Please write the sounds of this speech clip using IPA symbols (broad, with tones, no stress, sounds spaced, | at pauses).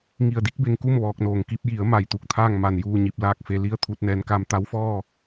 ŋ i˧˩ ə̯ d i˧˥ k̚ b e˧ ŋ k u˥˨ m ʋ ɔː˧ k̚ n oː˩ ŋ k i˧ p̚ j i˩˧ ə̯ m a˧˩ j t̪ u˥˨ k̚ t̪ʰ aː˥˨ ŋ m a˧˩ n j uː˥˨ ɲ i˧˩ p̚ l aː˥˨ k̚ f e˧ l i˥˨ ə̯ t̪ʰ u˧ t̚ n ɛː˩˧ n k aː˧ m t̪ a˧˥ w f ɔː˥˨